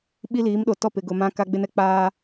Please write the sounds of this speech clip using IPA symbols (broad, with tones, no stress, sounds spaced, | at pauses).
ɓ i˦ l iː˨˦ m ɗ o˨ t ɔ˦˨ p ɪ˨ ɡ ʊ˨ m ã˦ k a˦ ɡ͡b ɪ˦ n ɛ˨ k͡p aː˦